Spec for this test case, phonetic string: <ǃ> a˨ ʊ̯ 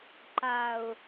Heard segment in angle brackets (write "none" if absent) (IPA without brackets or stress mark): ǃ